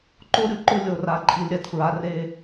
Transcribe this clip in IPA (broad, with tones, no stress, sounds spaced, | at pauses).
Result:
ǃ o˦ ɾʲ ʊ˨˦ ǃ ʊ˦ lʲ o˨ r a˨ ǃʼ i˨ l ɾʲ ɜ˨ t f ɹ a˨ r e˧